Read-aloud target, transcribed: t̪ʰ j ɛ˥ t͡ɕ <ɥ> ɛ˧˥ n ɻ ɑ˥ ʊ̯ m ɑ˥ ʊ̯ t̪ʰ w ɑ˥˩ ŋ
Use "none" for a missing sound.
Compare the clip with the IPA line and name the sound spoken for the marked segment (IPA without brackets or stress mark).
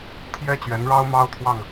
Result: ɥ